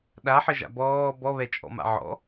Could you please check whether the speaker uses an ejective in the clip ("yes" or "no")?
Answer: yes